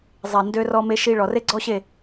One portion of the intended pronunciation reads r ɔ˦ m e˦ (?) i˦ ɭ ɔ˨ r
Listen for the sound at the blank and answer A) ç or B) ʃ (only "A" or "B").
B